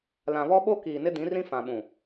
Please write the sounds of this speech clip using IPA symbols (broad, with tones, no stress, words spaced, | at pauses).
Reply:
lã˨βɔ˦ɓo˦ kiː˨nɪ˦dĩ˨˦rĩ˦ fã˨ɓũ˨